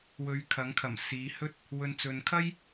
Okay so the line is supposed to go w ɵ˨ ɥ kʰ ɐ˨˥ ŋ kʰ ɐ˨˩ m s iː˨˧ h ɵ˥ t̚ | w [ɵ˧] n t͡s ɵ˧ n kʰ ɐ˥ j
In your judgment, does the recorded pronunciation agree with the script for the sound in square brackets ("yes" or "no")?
yes